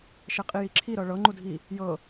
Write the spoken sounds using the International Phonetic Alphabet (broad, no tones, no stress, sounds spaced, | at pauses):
ʃ ɛ qʼ i j i ǁʰ i ɾ ɤ ɭ ɤ ŋ͡ǃ u dʱ i | j ɤ